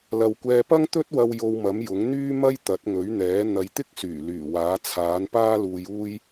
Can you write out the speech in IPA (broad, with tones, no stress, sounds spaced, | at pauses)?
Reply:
l ɐ˨ w kʷ ɛː˧ p ɐ˥ ŋ t̪ ɵ˥ t̚ w ɐ˧ w j o˧ w m ɐ˨˥ m j ʊ˨˥ ŋ n̪ yː˥ m ɐ˥ j t̪ ɐ˨˥ t̚ ŋ ɵ˨˥ ɥ n̪ ɛː˨˥ n̪ ɐ˨˧ j t̪ ɪ˥ k̚ s yː˨˩ l yː˨˩ w aː˨˥ t͡sʰ aː˨˥ n p aː˥ l uː˧ j uː˥ j